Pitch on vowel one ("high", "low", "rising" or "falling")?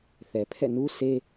low